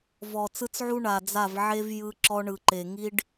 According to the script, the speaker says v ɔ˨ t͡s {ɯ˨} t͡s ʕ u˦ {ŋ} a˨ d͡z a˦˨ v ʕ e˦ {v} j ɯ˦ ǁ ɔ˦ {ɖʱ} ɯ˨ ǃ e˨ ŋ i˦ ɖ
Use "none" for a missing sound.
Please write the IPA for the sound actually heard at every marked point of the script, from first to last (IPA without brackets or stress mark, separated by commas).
ɯ˦, ɳ, v, ɳ